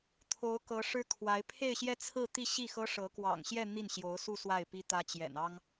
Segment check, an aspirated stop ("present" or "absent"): present